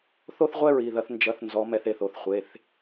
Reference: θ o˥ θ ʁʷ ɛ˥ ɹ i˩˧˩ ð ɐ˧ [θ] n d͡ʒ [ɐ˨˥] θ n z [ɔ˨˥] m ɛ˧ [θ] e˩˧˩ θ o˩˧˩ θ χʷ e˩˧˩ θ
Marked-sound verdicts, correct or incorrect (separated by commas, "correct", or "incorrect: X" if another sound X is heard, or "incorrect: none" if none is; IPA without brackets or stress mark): correct, correct, correct, correct